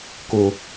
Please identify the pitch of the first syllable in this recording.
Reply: high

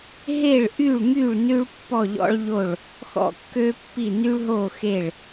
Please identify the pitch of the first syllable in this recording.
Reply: falling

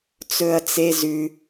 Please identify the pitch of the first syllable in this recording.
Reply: high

